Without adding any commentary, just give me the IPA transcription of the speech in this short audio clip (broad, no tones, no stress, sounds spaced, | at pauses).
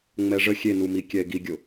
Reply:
ŋ͡m ɛ ʐ ə xʲ e n u m i kʲ ɛ e̯ ɡ i ɡʲ ʊ